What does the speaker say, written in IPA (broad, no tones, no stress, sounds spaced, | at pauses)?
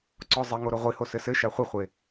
ǀ ɔ zˤ ɘ ŋ o ɾ o ʁʷ i h o s ɘ s ɘ ʃ a χʷ ɨ χʷ e